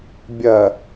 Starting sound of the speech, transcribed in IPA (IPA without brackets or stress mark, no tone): bʲ